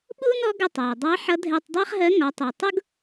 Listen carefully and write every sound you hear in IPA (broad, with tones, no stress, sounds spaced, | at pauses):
ɓ u˥ n ɔ˧˥ ɡ ə˧ tˤ æ˩ dˤ ɑ˧˥ ħ ʌ˧˥ dʱ ɛ˧ tˤ dˤ æ˥ χ ɦ ɜ˧˥ ŋ ɒ˩˧ tˤ i˩ tˤ ʊ˥ ɡ